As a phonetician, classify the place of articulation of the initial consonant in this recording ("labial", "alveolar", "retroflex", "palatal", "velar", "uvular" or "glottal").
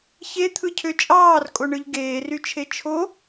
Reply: palatal